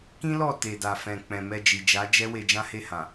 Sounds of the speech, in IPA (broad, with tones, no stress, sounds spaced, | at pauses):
k ĩ˦ l ɔ˦˨ t e˨ d a˨ f ɛ̃˨ k͡p ɛ̃˨ m ɛ˧ d͡ʒ i˨ d͡ʒ a˨˦ d͡ʒ ɛ˦ w e˧ d͡ʒ ã˦ h e˦˨ h ã˨